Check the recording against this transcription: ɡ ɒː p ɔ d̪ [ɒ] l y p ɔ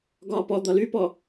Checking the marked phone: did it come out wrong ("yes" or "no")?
no